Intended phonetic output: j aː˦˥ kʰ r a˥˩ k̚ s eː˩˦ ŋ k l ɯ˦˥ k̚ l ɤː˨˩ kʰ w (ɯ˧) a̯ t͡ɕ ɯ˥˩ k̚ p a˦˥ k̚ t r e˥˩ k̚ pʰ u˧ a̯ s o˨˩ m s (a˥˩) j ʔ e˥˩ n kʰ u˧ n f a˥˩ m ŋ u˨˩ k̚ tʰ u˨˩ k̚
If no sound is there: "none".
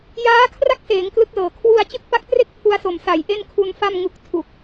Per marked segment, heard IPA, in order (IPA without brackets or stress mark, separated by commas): u˧, a˩˦